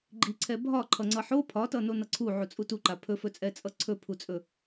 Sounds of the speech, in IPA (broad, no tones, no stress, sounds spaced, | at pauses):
ɡ͡ǃ i ǀʰ ɛ bʱ ɒ ǃʰ ʌ ŋ͡ǀ ʌ ħ o pʰ ɒ t ʌ n o n ʌ ǀʰ u ʕ u t͡sʼ u t u ǃ a pʰ ɵ f ɵ t͡sʼ ɛ t͡sʼ ʌ ǀʰ ɵ pʰ u t͡sʼ ɵ